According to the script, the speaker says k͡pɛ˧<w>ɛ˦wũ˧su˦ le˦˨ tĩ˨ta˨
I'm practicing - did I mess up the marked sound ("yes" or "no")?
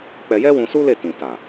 yes